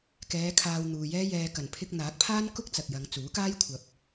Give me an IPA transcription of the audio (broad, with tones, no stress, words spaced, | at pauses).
kɛː˨˧ kʰaː˧wn̪uː˨jɛː˥ jɛː˨kɐ˨˩npʰɪ˧k̚ n̪aː˨˥k̚pʰaː˥nkʊ˥k̚ t͡sɐ˨k̚jɐ˨˧ŋt͡suː˨˥kaː˥j kʷʰɐ˨p̚